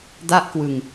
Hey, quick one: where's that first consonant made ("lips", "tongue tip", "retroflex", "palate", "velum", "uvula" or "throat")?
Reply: tongue tip